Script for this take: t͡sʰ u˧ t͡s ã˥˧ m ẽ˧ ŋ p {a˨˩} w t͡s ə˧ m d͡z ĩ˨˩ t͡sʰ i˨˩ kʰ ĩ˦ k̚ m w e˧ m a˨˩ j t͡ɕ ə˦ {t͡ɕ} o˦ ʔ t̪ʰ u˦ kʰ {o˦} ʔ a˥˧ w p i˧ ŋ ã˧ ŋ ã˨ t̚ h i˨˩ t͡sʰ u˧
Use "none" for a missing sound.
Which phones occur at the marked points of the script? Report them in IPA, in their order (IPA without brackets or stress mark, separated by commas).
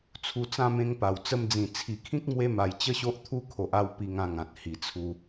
a˨˩, ɕ, o˨